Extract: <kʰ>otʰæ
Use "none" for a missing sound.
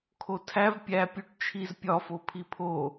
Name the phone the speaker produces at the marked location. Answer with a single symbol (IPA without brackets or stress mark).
kʰ